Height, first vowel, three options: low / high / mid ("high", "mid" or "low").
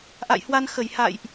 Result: low